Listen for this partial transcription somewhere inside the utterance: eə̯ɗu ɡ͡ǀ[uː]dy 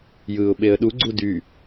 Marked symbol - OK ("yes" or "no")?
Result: no